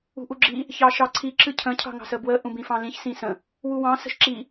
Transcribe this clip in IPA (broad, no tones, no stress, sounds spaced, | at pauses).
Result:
ṳ ʔ u ɡ͡ǁ i | ç ɑ ʃ ɑ ǀʰ i ǁ ɨ cʰ ə̃ cʰ ɑ̤ ŋ ɑ̤ s ə b w ə ʔ ũ b ĩ f ɑ̃ l ĩ ç s ĩ s ə̃ | w u w ɑ̃ s ə̤ ʃ ǁ i